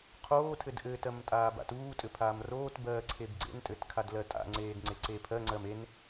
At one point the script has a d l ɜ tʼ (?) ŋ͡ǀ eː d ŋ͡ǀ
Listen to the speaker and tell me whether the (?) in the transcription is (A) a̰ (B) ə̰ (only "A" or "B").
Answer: A